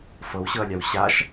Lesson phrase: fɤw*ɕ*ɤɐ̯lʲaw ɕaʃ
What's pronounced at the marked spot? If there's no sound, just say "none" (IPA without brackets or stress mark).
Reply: ɕ